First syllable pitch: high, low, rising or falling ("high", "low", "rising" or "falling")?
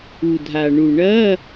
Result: low